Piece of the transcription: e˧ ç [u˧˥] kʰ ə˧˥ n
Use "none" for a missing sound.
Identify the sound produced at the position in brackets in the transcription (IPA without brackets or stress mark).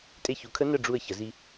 u˩˧